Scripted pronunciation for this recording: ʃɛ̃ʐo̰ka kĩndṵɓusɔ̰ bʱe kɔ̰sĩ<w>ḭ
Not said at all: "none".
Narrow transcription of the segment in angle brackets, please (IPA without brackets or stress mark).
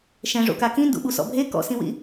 w